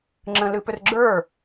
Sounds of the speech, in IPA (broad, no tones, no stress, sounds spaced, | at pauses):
ŋ͡ǁ ə̃ l ɨ p ʏ r ɡ͡ǁ ə˞